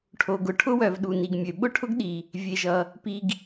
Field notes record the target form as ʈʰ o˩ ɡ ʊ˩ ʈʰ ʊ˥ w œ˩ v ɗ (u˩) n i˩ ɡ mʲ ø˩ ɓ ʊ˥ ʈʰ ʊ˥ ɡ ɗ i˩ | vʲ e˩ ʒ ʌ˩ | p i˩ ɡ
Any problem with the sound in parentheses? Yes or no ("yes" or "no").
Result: no